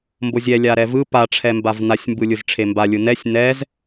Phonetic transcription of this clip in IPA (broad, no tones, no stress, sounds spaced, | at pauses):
m b o zʲ ɛ lʲ a ɾ ɛ v ɯ p a ʈ͡ʂʰ ɛ m b a v n a sʲ m b ɯ lʲ ɯ z ʈ͡ʂʰ e m b a lʲ ɯ n ɛ sʲ n ɛ z